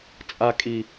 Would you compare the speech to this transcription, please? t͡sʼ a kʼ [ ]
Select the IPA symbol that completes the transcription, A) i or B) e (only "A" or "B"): A